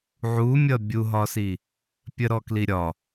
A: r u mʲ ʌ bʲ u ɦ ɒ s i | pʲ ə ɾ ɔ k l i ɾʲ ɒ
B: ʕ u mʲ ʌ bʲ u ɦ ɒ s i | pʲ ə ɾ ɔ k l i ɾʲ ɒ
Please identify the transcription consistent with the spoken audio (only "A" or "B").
B